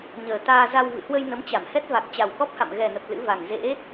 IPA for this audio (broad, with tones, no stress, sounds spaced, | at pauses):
ɲ əː˨˩ t̪ aː˧ z a˧ w v ɨ̰˧˨ h w ə˧ j n ə˨˦ m t͡ɕ a˧˩ m h ɛ˦˥ t̚ v a˨˩ k̚ t͡ɕ a˨˩ w k ɔ˦˥ p̚ h a̰˧˨ m ɣ ɛ˨˩ n ə˨˩ p̚ l ɨ̰˧˥ v a˨˩ ŋ z ḛ˧˥